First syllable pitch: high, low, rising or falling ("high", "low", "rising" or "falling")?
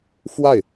falling